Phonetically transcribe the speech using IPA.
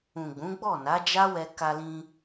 ũ˨ ɡ͡b ũ˨˦ ɡ͡b ɔ˦˨ n a˨˦ d͡ʒ a˦ w ɛ˧ k a˧ l ĩ˧

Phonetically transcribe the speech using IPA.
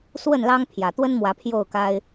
s w ə˥˨ n l ɑ˦ ŋ pʰ j ä˨˩ t̪ w ə˦ n m w ä˨˦ pʰ j o˥˨ ʊ̯ k a˦ ɪ̯

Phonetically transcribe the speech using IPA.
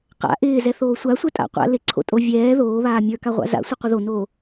q a̰ ʔ ɪː z ɛ θ oː sʷ a sʷ ɛ tʼ a̰ qʷ a̰ l ɪ ǀʰ o̰ tʼ o vʲ ɛː ð oː β aː mʲ ə˞ k a ʁʷ a̰ z a̰ sʷ ɪ qʷ ɪ ð o n oː

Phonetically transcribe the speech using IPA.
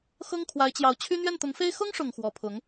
x ɤ˥ ŋ kʰ w a˧˥ ɪ̯ t͡ɕ j ɑ˧˥ ʊ̯ t͡ɕʰ y˥ n̪ ɥ ɛ˥˩ n t̪ ʊ˧˥ ŋ f e˥ ɪ̯ x ʊ˥ ŋ ʂ ʊ˨˩ ŋ x w ɔ˧˥ pʰ ʊ˧˥ ŋ

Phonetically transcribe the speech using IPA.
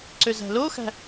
ǀ ø z æ̤ l o x æ̤

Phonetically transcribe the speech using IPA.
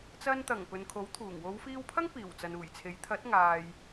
t͡s ɐ˧ n t̪ ɐ˨˩ ŋ p ɵ˨ n kʰ o˨˥ w t̪ʰ uː˨˩ ŋ w o˨˧ w f iː˧ w pʰ ɐ˥ ŋ p iː˨˩ w t͡s ɐ˨ n uː˨˩ j t͡sʰ e˨˥ j t̪ʰ ɐ˨˥ t̚ ŋ aː˨ j

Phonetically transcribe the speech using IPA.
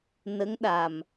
n ə˧˥ ŋ ɗ a˨˩ m

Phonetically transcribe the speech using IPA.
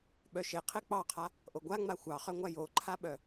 ɓ œ ʃ e qʰ e k͡p ɑ qʰ a | ʔ o ɡʷ a ŋ͡m a xʷ ɑ χ œ ŋʷ a j o ǃʰ a ɓ œ

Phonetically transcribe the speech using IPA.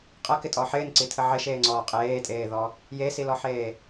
qʼ ɐ k ɪ tʼ ɔ ħ ɪː n ǀ i tʰ ə ʕ ɪ ʃ eː ŋ͡ǀ ɔː qʼ eː tʼ eː ð ɔ | j e s i l ɔ ħ eː

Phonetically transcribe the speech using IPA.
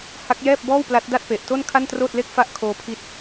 h a˦˥ k̚ j ɛː˥˩ p̚ b ɔː˥˩ w p l a˦˥ t̚ d a˥˩ t̚ p e˨˩ ʔ t o˥˩ n kʰ a˥˩ n t r oː˥˩ t̚ l e˥˩ k̚ f a˥˩ ʔ kʰ oː˦˥ pʰ i˦˥ t̚

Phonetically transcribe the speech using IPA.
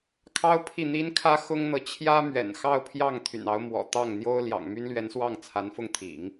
kʰ ɑ˥ ʊ̯ pʰ i˥˩ n̪ i˥ n kʰ ä˥ x ʊ˥ ŋ n̪ ɤ˨ t͡ɕʰ j ä˥ m ɥ ɛ̰˨˩ n x ɑ˥˧ ʊ̯ pʰ j ɑ˥˩ ŋ t̪ʰ y̰˨˩ n ɑ˧˥ ʊ̯ m w ɔ̰˨˩ t̪ ɑ˥˩ ŋ n̪ j o˥ ʊ̯ l j ɑ̰˨˩ ŋ m y˥ n l ɥ ɛ˧˥ n s w ɑ˥˩ ŋ t͡sʰ a˧˥ n f ʊ˥ ŋ t̪ʰ ḭ˨˩˦ ŋ

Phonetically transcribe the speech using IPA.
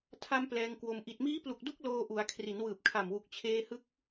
tʰ a˧ m p l ɛː˧ ŋ k w o˧ m ʔ i˨˩ t̚ m iː˦˥ p l u˨˩ k̚ d u˦˥ k̚ l oː˧ ʔ u˩˦ a̯ kʰ r i˩˦ n w ɯː˨˩ p̚ kʰ a˨˩ m w u˨˩ k̚ t͡ɕʰ eː˧ h ɯ˦˥ k̚

